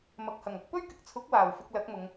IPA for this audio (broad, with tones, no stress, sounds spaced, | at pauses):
m ɐ˨ k̚ h ɐ˨˩ ŋ ɐ˧ k̚ p ɵ˥ ɥ k ɪ˨ k̚ t͡sʰ ʊ˨˥ k̚ w aː˨˩ w f ɪ˧ k̚ l ɐ˨˥ k̚ m ʊ˨˧ ŋ